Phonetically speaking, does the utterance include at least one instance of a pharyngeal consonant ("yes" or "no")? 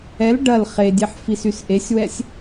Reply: yes